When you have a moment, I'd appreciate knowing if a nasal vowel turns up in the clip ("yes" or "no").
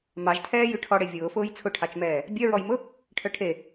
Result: no